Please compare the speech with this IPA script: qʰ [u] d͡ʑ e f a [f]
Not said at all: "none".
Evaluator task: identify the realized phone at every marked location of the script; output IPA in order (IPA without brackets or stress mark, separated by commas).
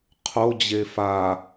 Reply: o, none